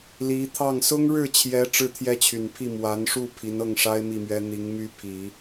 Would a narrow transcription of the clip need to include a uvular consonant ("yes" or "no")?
no